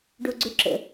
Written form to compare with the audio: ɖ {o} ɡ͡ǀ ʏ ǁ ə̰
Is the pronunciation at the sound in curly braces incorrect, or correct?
correct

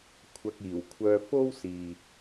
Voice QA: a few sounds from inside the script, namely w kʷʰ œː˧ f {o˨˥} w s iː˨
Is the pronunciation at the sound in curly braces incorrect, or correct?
incorrect: o˥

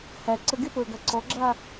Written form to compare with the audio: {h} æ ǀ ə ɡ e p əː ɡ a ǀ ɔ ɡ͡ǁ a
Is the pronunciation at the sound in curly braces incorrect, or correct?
correct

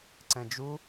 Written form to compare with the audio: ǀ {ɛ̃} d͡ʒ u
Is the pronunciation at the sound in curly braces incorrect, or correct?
correct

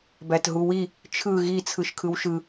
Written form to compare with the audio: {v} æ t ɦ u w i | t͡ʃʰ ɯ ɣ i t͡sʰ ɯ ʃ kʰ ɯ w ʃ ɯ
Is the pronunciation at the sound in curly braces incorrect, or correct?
incorrect: b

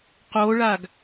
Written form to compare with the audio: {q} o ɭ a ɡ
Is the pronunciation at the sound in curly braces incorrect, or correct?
correct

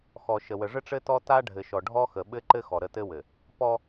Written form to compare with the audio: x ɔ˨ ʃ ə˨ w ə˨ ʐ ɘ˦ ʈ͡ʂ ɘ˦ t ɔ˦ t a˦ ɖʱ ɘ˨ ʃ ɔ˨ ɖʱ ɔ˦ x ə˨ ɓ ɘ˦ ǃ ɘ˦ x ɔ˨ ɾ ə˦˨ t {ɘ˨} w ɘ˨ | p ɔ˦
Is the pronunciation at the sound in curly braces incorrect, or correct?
incorrect: ɘ˦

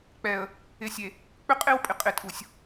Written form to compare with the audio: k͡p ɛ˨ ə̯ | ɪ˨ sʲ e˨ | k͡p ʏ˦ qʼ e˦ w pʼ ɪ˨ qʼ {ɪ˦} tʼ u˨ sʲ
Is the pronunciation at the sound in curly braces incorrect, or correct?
incorrect: ɪ˨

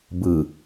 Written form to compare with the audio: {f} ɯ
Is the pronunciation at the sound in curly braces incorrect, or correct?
incorrect: b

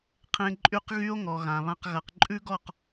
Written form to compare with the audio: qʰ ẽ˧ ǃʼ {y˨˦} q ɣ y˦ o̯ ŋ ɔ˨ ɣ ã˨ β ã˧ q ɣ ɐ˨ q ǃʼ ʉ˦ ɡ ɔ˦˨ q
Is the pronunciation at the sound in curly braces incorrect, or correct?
incorrect: y˦˨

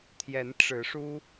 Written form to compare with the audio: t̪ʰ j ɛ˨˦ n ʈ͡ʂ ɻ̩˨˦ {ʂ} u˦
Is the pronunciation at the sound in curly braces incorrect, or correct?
correct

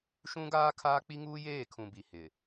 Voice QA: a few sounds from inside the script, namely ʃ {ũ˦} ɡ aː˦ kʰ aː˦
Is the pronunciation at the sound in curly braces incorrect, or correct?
correct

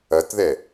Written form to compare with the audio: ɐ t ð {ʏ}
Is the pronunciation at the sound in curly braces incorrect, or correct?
incorrect: ɛ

